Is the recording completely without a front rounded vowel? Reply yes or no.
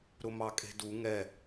yes